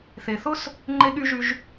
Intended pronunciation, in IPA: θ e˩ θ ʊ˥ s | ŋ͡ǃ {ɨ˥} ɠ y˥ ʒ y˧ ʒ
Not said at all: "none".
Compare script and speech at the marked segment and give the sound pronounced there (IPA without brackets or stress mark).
e˥